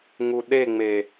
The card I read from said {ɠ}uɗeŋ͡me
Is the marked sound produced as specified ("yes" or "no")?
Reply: no